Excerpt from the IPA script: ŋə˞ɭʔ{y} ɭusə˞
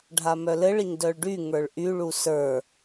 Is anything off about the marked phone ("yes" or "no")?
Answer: no